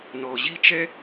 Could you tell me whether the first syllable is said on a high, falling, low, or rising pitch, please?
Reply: low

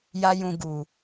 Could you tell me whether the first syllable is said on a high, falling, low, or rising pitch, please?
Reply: high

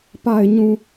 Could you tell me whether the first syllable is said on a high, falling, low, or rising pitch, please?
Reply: low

